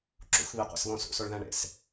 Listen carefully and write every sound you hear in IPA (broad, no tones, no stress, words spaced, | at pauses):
ǁṵxβi qʷḛsβõsṵ soɭðæ̃ɳḛs